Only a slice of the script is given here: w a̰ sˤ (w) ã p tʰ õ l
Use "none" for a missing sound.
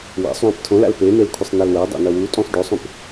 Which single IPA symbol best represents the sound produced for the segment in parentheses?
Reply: w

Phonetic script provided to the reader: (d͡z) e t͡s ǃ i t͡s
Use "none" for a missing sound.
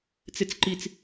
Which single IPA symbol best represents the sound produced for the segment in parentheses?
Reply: t͡s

